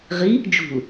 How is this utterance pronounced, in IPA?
ʁ i | d͡ʒ ṳ l

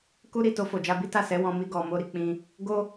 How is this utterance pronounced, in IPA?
k u˦ ɾ i˦˨ t o˧ f o˨ d͡ʒ a˧ b i˦ t a˦˨ s ɛ˨˦ w ɔ̃˧ m i˧ ɡ ɔ˨ m o˧ ɾ i˨ k͡p ĩ˧ | ɡ o˦

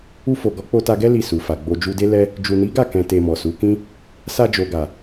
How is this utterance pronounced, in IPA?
u˧ f o˨ ɡ ɔ˨˦ k͡p o˧ t a˧ ɡ ɛ˦ l i˦˨ s u˨ f a˨ ɡ͡b o˧ d͡ʒ u˧ d e˦ l ɛ˦ | d͡ʒ u˨ n i˨˦ ɡ a˦˨ k ɛ̃˨ t e˧ m ɔ˨ s u˨˦ k ĩ˦ | s a˧ d͡ʒ o˨ ɡ a˨

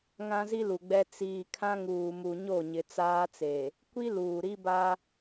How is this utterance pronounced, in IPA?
ŋ ã˦ z i˦ l u˨ ɡ͡b ɛ˦ t͡s iː˨ kʰ ã˦ ŋ uː˨ m u˨ ɲ o˦˨ ɲ ɪ˨ t͡s aː˦ t͡s e˨ | kʷ i˦ l uː˨ ɾ i˦ b a˦

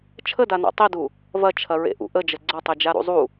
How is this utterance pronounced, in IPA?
t͡ʃʰ ə d a n a̰ tˤ i d u | v ɐ t͡ʃʰ ɐ ɹ ḛ ʔ ṵ ʔ ə d͡ʒ ə ɡ͡ǀ ɐ tˤ e d͡ʒ a ɾ ṵ zˤ u

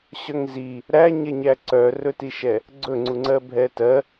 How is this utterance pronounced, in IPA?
ɕ œ ŋ z i | ɾ æ ɲ ɛ ɲ æ ǀ œ r ɵ t i ʃ ɛ | ɡ͡ǀ ɵ ŋ͡ǀ u ŋ͡ǀ ɜ bʱ ɛ t ɜ

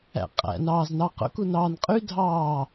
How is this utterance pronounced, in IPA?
æ̰ qʼ æ̰ n ɑː z n ɑ q o̰ k u n ɑː n qʼ y dʱ ɑː

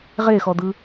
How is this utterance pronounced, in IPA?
ʁ e x ɔ d̪ ɯ

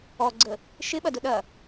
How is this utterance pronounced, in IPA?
ɔ ɡ͡ǀ ə | ʃ ɪ ɓ ɐ d ʊ ɗ ɐ

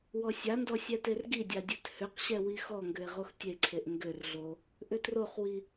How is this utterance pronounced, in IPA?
w ɔ sʲ a n d ɔ sʲ ɛ t e r ɡ i dʲ a dʲ ɛ t h ʏ q ɕ ɛ w i x ɔ ŋ ɡ ʏ e̯ ʁ o x tʲ e ǀʰ e ʔ ŋ ɡ ʏ r ɮ o | ʔ ʏ t r o χ w i

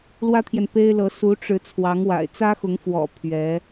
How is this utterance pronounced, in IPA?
l w ä˥ t̪ʰ j ɛ˨ n p e˥ ɪ̯ l ɤ˧˥ s u˧˥ ʈ͡ʂ ɻ̩˧˥ t͡sʰ w ɑ˧˥ ŋ w a̰˨˩ ɪ̯ t͡s ä˥ x ʊ˧˥ ŋ f w ɔ̰˨˩ pʰ ɥ ɛ˧˥

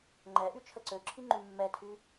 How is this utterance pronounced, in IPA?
ŋ͡ǃ ɛ ʔ y t͡ʃʰ ə ǀ ø ǁʰ i ŋ͡ǃ y mː ɛ tʰ y

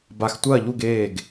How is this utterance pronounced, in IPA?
b a˧ x tʷ ɐː˥˧ ʎ u˥˧ ɡ eː˥˧ ɡ

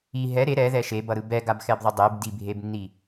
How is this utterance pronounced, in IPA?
i ɦ ɛ ɾ e ɾ ɛ ð ɛ ʃ e b ʌ ɾ ɯ b ɛ ɡ a b x ɛ b ðˤ ɯ dˤ e b d i bʱ e b nː i

